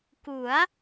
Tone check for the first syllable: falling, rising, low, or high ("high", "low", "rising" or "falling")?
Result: rising